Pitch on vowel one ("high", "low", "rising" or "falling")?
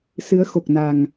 rising